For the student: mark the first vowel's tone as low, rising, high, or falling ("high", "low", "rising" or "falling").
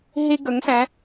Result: high